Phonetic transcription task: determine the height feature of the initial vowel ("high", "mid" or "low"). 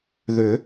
high